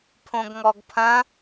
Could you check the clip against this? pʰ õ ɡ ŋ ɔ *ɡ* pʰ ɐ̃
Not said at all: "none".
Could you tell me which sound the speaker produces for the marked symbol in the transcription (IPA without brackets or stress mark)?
ɡ